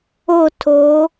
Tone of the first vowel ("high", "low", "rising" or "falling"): falling